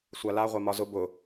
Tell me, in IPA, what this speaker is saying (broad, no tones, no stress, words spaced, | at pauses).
sʷala ʁʷamɒzʊ bʊ